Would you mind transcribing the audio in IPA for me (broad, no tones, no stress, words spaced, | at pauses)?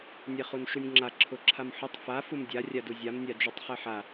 nʲɛχunʃunʲŋ͡ǁa ǁʰʊǁʰamħʊtˤ fa fumdʲa rʲaduzʲam nʲad͡ʒutˤχɛħa